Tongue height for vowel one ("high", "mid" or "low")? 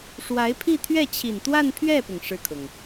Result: low